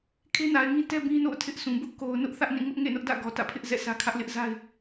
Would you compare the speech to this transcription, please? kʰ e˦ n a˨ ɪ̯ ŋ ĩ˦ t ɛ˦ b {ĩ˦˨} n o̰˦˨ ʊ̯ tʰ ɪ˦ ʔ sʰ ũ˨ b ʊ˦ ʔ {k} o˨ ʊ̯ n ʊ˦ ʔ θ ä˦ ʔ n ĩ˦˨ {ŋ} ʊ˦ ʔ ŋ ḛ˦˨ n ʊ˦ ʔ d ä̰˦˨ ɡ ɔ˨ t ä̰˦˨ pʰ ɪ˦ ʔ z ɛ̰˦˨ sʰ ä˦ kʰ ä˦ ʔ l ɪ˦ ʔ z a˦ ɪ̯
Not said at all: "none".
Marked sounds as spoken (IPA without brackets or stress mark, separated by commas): ĩ˦, k, ŋ